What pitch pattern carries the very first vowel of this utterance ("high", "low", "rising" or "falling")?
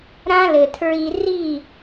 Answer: high